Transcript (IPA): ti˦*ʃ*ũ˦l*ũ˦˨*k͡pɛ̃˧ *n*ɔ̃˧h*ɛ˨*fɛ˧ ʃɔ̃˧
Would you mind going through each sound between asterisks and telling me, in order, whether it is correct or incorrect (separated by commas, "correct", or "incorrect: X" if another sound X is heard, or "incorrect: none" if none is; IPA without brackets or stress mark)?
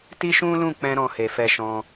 correct, correct, incorrect: ɾ, incorrect: e˨